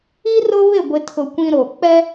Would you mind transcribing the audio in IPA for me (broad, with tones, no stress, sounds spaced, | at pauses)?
i˦ r ʊ˦ β ɪ˦˨ ɡʷ ɪ˨ tʰ ʊ˨ kʷ ĩ˨ ɾ o˨ k͡p ɛ˦